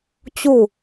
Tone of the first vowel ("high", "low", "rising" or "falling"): falling